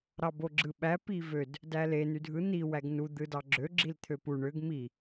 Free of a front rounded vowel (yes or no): no